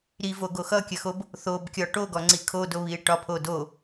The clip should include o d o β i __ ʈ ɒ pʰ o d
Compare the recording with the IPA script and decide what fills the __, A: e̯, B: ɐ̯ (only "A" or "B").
A